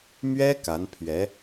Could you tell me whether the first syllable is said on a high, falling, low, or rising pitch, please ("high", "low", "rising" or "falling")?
high